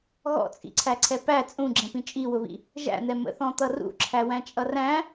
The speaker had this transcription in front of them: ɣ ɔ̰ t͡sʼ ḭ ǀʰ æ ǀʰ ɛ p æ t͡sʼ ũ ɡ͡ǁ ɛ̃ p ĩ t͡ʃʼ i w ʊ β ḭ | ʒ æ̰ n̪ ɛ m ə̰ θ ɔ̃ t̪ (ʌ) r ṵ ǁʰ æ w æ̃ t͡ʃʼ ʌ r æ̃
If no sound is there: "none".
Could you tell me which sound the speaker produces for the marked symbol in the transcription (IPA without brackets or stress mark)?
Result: ʌ